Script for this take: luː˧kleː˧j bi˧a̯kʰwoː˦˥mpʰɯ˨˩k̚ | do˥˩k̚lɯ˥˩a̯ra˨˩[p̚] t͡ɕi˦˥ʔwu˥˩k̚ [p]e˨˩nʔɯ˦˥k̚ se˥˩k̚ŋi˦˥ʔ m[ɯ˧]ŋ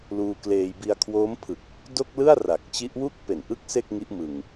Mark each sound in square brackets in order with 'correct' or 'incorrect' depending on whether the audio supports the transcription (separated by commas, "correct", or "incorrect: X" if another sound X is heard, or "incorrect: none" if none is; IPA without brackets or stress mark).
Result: incorrect: k̚, correct, correct